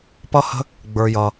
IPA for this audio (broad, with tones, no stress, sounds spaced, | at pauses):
p ʌ˦ h ə̤˦ | ɡ͡b ə˞˧ j ʌ˧